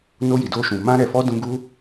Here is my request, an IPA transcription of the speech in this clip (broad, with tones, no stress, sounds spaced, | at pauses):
n o˧ j i˨ d o˧ ʃ ũ˨ m ã˧ ɾ ɛ˨ f ɔ˧ d ũ˧ ɡ u˦